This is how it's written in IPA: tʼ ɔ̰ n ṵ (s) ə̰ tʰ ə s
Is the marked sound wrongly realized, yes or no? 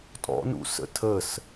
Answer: no